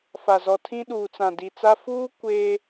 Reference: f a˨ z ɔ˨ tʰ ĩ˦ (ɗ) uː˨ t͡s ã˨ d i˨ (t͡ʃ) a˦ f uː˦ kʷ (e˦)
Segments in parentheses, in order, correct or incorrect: correct, incorrect: t͡s, incorrect: eː˦

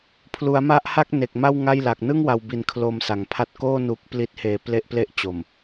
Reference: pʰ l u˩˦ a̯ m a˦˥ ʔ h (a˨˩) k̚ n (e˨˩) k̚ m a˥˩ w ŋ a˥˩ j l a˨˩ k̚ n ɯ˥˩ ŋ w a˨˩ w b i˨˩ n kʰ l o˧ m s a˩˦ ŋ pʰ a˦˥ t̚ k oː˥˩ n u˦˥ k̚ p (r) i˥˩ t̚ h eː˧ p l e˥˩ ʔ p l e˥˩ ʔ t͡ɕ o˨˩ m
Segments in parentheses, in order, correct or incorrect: incorrect: a˥˩, correct, incorrect: l

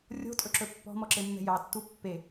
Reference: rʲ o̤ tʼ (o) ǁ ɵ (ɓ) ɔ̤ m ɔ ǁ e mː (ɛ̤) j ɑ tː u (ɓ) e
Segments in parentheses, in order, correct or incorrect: incorrect: ɵ, incorrect: pː, correct, incorrect: pː

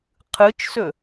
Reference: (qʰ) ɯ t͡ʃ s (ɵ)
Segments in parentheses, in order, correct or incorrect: correct, correct

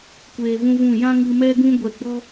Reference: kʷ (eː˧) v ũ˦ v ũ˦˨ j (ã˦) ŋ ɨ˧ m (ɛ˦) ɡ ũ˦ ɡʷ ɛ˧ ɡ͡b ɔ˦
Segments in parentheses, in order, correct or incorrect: correct, correct, correct

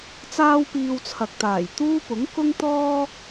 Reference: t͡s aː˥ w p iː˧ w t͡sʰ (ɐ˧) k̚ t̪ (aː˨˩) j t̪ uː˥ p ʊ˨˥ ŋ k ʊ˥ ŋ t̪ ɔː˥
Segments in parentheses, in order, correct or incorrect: incorrect: ɐ˨, correct

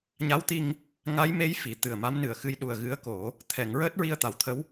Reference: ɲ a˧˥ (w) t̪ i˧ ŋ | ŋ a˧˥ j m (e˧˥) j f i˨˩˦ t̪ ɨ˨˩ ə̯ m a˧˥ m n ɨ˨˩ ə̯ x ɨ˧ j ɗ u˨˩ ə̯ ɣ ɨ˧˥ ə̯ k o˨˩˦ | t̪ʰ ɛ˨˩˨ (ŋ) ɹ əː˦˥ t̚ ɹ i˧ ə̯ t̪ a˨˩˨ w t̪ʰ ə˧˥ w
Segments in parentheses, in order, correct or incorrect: correct, correct, correct

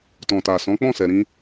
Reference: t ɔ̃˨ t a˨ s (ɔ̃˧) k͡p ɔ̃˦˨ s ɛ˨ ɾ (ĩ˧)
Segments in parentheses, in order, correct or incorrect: incorrect: ɔ̃˨˦, correct

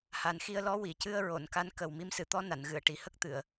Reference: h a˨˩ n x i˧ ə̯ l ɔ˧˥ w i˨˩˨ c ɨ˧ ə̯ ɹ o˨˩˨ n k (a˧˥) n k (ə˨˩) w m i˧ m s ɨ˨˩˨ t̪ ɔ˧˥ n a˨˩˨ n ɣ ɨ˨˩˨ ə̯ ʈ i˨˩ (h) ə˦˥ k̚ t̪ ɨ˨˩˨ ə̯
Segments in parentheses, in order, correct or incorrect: correct, correct, correct

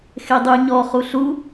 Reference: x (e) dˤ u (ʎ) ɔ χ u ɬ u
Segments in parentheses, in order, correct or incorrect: correct, incorrect: ɲ

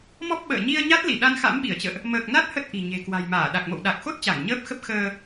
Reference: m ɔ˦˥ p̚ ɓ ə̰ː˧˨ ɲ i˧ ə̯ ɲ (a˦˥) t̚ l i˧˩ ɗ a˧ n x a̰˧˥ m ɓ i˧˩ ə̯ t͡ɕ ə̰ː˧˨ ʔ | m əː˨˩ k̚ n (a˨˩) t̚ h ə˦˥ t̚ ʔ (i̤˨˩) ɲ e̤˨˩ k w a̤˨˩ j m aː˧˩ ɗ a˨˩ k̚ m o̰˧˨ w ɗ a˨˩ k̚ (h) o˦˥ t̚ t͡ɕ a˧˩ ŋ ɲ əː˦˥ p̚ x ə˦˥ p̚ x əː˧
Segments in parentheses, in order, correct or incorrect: correct, incorrect: a˦˥, correct, incorrect: x

